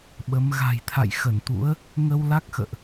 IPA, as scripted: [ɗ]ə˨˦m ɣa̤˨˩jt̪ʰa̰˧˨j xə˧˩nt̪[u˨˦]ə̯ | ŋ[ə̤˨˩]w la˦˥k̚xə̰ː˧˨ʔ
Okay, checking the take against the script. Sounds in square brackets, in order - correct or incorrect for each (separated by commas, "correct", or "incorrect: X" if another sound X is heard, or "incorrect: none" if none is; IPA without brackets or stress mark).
incorrect: ɓ, incorrect: ṵ˧˥, incorrect: ə˧